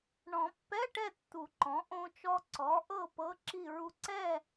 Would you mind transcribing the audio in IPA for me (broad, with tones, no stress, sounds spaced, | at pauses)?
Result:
ɳ ɔ̃˨˩˦ pː ɛ˧˥˧ ʈ ɛ˥˨ tː u˨˩˦ ǃ ɔ̃˩˥ ʔ õ˧ t͡ʃ ɔ˧ ǀ ɔ˩˥ ʔ ɤ˥˨ p ɤ˧˥˧ ǁ i˥˨ ɹ u˧ ǀ ɛ˥˨